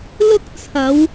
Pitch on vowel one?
high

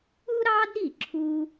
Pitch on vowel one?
high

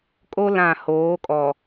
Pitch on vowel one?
high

